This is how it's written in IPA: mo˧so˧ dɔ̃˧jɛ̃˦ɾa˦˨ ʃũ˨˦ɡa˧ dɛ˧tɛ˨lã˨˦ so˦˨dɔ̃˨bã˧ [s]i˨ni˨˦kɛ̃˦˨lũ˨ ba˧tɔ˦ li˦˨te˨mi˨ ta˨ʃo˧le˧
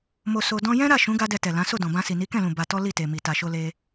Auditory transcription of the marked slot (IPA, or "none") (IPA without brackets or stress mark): s